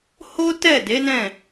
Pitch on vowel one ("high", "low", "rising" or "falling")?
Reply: high